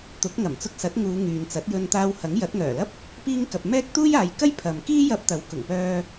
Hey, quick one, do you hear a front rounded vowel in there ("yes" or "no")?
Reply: yes